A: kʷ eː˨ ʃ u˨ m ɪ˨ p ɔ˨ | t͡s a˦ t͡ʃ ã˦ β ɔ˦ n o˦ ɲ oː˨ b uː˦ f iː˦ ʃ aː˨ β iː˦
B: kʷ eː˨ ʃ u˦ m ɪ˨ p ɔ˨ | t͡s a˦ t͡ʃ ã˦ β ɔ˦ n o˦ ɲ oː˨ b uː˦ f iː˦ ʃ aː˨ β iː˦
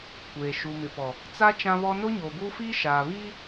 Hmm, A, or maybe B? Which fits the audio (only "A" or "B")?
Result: A